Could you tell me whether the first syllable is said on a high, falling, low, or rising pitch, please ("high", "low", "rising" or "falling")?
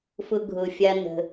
low